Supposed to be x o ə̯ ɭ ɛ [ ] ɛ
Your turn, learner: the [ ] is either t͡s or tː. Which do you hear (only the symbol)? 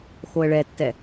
tː